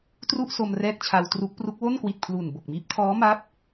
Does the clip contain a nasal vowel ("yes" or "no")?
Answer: no